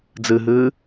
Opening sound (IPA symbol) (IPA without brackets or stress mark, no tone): d͡z